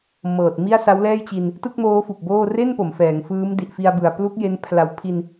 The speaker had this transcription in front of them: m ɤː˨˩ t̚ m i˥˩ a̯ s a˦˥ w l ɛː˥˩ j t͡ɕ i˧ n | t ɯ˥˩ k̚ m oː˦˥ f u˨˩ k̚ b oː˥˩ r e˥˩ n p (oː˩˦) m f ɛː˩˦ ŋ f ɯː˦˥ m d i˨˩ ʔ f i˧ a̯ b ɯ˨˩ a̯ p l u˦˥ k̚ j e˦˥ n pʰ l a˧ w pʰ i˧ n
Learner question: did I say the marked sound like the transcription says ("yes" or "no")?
no